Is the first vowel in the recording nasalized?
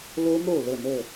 no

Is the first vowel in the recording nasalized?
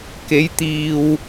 no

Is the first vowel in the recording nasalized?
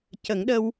no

